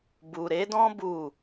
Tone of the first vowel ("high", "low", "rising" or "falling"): low